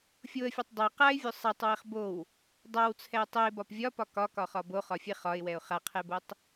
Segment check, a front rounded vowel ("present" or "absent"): absent